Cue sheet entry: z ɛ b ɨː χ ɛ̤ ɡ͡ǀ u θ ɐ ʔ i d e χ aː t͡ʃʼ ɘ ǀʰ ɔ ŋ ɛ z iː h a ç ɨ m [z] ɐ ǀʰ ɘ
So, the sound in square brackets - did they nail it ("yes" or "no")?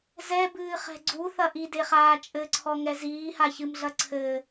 no